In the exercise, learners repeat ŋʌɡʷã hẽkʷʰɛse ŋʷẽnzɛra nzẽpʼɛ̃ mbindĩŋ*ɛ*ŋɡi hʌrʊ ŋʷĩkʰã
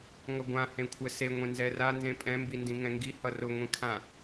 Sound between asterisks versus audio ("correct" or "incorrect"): incorrect